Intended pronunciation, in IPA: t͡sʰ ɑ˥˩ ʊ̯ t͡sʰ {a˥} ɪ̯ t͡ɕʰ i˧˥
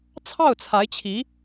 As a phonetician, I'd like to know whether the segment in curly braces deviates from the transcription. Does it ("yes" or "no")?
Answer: yes